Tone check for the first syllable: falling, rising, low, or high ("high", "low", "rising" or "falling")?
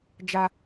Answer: low